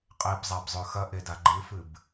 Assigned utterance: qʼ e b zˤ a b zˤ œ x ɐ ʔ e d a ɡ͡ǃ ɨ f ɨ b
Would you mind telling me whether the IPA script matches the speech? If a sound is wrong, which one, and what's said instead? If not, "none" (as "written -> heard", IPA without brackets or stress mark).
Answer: œ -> ɵ